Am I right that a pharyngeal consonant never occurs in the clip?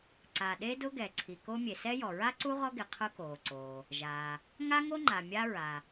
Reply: yes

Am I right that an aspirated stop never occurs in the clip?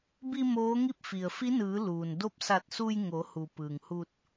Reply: yes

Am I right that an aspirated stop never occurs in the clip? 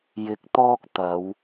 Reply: yes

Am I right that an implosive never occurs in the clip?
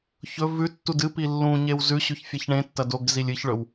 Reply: yes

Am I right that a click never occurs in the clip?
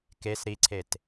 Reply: no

